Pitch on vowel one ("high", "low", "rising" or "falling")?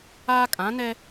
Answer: high